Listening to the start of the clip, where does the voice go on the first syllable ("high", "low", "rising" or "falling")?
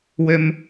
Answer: high